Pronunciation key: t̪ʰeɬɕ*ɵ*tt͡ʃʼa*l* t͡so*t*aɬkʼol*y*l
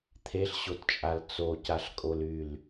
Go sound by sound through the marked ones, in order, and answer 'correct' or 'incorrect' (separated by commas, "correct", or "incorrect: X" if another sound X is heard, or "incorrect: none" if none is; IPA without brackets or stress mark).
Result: incorrect: o, correct, incorrect: c, correct